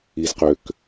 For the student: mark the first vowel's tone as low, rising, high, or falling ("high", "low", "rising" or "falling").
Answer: low